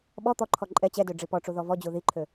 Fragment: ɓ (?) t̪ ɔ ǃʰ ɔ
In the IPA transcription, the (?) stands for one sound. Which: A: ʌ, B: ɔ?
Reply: B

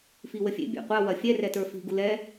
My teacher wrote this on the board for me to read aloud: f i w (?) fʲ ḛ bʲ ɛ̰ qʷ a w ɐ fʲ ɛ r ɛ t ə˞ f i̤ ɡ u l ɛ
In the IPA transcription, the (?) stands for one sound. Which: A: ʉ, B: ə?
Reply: B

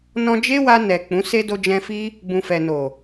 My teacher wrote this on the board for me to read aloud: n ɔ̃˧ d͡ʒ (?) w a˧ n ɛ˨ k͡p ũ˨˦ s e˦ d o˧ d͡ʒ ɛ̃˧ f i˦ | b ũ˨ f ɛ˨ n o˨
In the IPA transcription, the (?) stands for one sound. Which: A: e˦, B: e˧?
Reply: A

